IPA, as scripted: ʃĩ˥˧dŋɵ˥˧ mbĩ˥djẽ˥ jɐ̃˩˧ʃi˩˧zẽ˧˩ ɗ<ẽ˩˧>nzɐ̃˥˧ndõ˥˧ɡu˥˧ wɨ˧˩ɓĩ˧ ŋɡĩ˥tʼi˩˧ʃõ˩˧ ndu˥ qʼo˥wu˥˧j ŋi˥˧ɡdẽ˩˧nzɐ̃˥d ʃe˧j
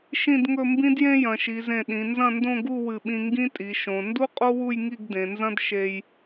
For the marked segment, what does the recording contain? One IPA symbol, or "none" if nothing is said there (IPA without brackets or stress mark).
ĩ˩˧